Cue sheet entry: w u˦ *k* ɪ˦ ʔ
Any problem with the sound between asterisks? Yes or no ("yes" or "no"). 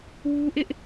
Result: yes